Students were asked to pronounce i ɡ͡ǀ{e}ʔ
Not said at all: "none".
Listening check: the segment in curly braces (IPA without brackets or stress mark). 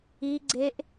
e